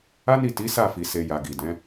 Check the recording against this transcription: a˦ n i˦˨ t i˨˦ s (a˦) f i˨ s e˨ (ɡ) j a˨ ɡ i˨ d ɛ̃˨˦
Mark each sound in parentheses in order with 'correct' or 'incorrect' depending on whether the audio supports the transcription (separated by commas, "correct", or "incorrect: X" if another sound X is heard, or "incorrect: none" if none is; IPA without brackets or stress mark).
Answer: incorrect: a˦˨, incorrect: none